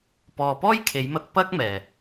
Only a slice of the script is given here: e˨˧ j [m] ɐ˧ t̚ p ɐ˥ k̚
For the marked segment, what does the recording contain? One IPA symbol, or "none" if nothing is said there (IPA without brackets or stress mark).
m